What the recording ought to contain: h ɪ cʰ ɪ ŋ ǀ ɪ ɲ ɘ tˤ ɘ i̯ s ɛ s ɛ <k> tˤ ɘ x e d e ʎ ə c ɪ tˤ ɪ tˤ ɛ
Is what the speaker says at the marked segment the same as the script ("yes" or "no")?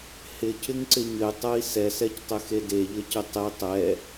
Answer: no